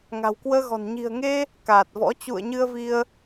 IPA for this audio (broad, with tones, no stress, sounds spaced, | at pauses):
ŋ a̤˨˩ w k w əː˧ ɣ ɔ̤˨˩ n ɲ i̤˨˩ ə̯ ŋ e˧ | k aː˨˩ t̚ v ɔ̰˧˥ t͡ɕ ṵ˧˨ ə̯ ɲ ɨ˧ ə̯ v i˧ ə̯